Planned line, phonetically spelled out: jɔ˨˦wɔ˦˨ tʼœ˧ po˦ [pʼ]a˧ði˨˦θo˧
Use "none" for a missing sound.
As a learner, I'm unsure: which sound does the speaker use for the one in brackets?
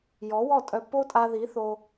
tʼ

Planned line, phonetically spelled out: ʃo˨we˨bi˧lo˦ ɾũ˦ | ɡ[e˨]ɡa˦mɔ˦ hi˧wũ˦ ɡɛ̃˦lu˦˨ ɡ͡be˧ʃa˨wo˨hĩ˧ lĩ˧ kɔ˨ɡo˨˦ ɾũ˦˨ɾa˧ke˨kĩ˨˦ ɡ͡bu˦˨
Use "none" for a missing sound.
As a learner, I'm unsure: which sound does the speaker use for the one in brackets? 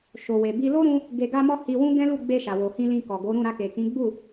e˧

